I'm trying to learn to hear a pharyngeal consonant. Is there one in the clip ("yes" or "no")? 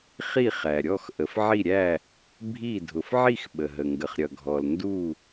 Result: yes